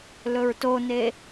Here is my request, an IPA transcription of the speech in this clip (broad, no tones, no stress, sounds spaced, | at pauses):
l ɵ ɹ t o n e